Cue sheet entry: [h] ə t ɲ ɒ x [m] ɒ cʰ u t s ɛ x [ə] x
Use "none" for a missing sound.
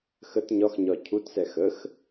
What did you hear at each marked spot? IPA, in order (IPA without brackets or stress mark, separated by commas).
x, ɲ, ə